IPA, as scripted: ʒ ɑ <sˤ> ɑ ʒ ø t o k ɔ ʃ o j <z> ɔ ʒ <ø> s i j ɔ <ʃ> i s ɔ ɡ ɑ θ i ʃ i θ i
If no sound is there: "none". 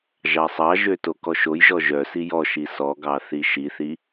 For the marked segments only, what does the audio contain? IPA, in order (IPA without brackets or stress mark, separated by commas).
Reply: sˤ, ʒ, œ, ʃ